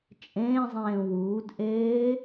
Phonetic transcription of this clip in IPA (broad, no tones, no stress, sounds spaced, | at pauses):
t͡ʃʼ ẽː zˤ ẽː w uː d ʔ eː